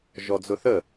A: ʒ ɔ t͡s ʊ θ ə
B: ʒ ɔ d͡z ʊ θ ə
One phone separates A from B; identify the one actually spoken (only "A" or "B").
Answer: B